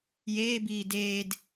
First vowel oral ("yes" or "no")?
yes